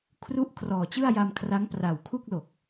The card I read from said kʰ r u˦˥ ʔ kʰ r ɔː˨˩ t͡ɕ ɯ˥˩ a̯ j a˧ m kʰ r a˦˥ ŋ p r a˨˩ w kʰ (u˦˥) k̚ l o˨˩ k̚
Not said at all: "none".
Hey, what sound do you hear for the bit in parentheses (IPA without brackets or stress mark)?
u˥˩